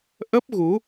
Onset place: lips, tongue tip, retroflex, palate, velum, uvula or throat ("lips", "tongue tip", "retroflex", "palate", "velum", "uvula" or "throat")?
throat